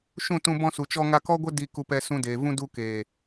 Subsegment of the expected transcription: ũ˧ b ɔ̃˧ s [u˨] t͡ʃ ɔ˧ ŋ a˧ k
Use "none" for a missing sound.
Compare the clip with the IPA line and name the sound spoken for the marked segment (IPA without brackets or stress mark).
u˨